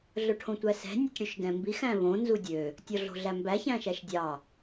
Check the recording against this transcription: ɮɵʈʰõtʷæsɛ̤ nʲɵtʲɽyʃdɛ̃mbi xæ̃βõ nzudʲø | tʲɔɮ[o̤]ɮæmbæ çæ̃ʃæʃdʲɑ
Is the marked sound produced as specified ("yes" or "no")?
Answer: yes